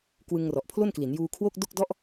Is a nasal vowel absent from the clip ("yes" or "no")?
yes